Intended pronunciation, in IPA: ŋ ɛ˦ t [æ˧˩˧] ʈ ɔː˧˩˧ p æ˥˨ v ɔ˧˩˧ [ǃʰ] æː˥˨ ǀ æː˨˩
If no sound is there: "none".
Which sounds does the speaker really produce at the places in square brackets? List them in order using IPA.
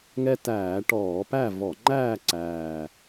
æː˧˩˧, ŋ͡ǃ

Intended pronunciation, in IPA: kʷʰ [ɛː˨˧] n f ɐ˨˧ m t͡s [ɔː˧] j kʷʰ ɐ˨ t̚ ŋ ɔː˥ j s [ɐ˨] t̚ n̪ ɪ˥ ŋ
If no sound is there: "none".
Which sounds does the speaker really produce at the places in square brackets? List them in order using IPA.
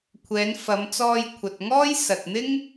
ɛː˨˧, ɔː˧, ɐ˨

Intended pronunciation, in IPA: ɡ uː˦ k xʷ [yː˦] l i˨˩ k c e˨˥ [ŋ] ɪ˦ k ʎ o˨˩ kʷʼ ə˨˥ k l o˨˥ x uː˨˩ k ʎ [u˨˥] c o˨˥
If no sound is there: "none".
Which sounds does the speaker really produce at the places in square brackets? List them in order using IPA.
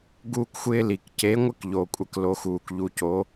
ɪː˦, ŋʷ, u˨˥

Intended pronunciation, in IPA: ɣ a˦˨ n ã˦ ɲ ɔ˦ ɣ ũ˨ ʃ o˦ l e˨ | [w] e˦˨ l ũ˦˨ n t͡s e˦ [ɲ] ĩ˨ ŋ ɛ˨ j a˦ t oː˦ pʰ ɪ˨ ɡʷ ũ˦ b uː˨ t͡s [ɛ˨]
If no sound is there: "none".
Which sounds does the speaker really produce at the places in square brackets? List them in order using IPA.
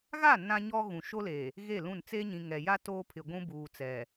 ɣ, ɲ, ɛ˨

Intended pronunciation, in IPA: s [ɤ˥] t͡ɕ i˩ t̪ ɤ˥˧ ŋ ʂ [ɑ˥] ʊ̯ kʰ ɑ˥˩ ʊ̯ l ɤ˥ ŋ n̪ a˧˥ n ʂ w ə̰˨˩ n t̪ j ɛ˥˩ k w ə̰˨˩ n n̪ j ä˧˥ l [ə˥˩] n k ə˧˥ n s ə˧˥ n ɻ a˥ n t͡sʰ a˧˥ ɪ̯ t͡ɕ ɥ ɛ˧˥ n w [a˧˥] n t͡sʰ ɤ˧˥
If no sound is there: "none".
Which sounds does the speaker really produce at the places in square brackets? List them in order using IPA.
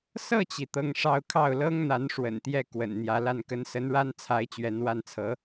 ɤ˥˩, ɑ˥˧, a˥˩, a˥˩

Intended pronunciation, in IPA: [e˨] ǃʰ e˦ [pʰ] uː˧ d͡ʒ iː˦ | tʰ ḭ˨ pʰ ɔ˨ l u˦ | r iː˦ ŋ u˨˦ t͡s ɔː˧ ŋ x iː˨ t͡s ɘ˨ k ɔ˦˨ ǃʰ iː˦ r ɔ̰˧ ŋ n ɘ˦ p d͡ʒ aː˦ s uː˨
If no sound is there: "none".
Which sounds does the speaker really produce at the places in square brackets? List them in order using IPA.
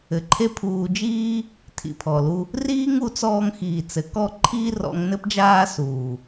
ɘ˨, pʰ

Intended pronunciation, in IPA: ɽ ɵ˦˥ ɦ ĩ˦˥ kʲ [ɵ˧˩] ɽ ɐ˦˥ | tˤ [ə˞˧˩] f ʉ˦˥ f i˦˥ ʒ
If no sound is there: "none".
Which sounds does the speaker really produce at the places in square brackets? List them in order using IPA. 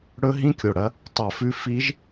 o˧˩, ɐ˧˩

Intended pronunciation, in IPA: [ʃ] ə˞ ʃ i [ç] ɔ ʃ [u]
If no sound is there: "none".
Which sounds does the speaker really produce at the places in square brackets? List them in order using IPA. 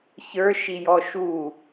ç, j, u

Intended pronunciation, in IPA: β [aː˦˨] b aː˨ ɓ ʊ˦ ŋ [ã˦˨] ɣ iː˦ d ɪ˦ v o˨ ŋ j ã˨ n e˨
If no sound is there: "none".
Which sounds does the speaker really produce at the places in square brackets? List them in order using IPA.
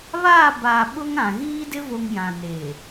aː˦˨, ã˨

